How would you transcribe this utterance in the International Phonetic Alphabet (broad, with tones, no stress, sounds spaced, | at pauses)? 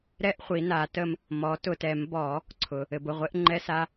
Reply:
ɾ ɛ˥ ʔ χʷ i˩˥ n a˩˥ t ə˥ m | m ɔ˩˥ t ʊ˨ t ɛ˨˩˦ m b ɔ˨˩˦ | ǀʰ ʊ˨ | ɘ˨ b ʊ˨ ʁʷ e˥ ʔ ŋ͡ǃ ɛ˥ s a˥